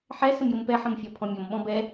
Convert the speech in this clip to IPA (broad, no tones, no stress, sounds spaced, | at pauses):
ħ ɛ s ə m j ʊ m p ɛ ħ ə̃ m fʲ ɒ pʰ ɔ̃ mʲ ɔ m ɓ ɔ̃ b ɛ